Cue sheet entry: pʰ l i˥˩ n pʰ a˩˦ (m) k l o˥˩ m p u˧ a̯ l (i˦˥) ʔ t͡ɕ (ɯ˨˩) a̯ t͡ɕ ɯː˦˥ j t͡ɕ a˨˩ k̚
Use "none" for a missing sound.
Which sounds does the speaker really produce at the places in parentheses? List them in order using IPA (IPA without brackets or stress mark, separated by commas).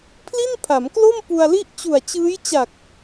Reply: m, i˥˩, u˨˩